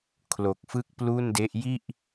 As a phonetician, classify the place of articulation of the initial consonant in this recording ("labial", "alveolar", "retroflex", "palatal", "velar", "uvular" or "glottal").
velar